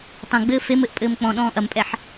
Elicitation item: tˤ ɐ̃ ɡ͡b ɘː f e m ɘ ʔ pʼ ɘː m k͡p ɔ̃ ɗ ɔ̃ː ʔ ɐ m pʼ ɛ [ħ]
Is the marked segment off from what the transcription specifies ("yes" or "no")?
no